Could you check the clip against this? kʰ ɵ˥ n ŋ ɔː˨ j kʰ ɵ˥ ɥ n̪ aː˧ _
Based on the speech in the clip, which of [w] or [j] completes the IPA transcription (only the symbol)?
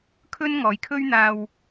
w